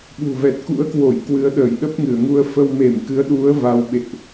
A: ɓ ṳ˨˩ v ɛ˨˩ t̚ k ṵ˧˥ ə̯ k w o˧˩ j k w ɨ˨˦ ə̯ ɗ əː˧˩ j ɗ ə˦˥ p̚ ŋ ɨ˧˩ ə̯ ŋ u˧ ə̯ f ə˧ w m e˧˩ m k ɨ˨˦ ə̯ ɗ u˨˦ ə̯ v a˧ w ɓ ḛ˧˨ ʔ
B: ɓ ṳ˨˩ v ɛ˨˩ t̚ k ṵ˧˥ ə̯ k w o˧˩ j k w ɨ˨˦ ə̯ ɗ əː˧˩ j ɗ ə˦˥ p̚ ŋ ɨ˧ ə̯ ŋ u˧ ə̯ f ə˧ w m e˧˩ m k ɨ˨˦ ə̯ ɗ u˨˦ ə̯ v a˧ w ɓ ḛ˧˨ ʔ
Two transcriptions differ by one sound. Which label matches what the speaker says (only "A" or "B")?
A